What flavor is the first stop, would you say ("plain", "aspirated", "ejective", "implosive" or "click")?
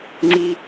click